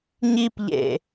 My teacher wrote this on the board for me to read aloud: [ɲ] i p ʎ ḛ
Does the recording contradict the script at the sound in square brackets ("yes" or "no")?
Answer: no